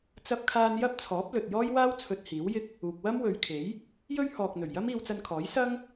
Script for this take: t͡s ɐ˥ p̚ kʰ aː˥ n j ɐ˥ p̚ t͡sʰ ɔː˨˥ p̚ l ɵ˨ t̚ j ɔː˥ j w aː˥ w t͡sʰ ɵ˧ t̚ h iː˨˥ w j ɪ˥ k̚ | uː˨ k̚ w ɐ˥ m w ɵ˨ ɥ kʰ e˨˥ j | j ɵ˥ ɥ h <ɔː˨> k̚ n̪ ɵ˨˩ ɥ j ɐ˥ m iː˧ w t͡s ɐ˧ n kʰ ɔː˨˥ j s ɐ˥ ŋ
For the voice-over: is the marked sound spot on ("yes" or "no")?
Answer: yes